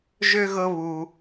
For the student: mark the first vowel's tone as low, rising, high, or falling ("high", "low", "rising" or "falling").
high